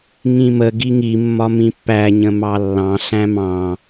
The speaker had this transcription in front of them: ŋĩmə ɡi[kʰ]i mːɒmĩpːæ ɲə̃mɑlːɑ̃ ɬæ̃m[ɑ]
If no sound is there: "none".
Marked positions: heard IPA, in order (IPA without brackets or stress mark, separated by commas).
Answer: ŋ, ɑ̃